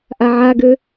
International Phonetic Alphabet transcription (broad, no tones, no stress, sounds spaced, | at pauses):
ʔ a ʕ a ɡ ø